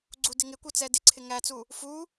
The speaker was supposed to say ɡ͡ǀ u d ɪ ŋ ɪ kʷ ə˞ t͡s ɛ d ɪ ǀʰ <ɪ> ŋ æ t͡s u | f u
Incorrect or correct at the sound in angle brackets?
correct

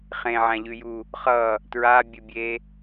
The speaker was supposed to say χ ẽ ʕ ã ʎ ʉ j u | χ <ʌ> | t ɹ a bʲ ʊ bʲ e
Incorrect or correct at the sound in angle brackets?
correct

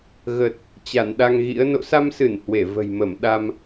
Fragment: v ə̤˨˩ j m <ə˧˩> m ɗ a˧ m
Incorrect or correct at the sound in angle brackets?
correct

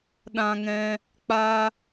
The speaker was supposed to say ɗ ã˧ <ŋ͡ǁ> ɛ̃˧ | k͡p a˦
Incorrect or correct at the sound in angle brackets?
incorrect: ŋ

